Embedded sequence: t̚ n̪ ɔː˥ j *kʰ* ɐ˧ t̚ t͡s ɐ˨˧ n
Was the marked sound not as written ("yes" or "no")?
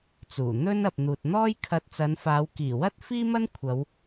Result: no